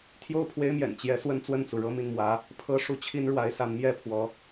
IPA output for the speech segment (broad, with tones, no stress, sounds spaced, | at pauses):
t̪ʰ j o˥˩ ʊ̯ pʰ w e˥ ɪ̯ m j ɛ̰˨˩ n t͡ɕ j ɛ˧˥ s w ə˥ n t͡s w ə˥˩ n t͡s u˩ ɻ ɤ˥˧ m i˥˩ n m w ä˧˥ | pʰ ɤ˥ ʂ u˥˩ t͡ɕʰ i˥ n ɻ w a˧˥ ɪ̯ s a˧˥ n m j ɛ˥ pʰ w ɔ˧˥